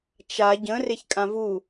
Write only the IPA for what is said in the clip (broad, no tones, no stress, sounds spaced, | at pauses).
t͡ʃ a ɟ ə̃ r e ç kʼ ã v u